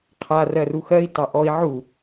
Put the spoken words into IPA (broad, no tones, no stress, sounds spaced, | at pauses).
qʰ a r ɜ r u x ɜ i̯ t ɑ ʔ ɔ i̯ ʕ u